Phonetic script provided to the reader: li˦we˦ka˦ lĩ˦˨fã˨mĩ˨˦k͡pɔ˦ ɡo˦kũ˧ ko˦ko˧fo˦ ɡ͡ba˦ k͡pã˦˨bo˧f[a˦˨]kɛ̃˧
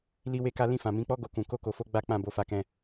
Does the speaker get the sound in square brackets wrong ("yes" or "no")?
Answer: yes